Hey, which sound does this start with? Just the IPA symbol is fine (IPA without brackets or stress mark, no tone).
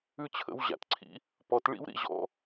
ʉ